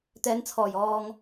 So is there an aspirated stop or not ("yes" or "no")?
yes